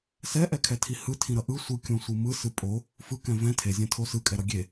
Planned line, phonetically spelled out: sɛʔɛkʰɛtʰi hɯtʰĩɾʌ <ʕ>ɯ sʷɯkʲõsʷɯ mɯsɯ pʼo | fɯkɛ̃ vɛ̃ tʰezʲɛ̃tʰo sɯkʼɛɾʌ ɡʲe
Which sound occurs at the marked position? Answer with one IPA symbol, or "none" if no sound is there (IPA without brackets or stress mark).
ʔ